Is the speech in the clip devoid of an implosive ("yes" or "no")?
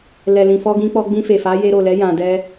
yes